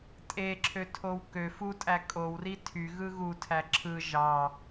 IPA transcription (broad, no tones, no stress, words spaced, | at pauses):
tʼeǁʰøtʰow kø futʼæ kʼowri tʰyɣɯ ɣutʰæ ǁʰɯ ʒɑ